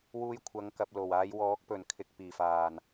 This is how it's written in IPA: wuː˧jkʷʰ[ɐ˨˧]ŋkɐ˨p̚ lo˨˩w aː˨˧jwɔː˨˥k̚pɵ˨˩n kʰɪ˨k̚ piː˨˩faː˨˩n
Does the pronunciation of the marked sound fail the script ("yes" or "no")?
no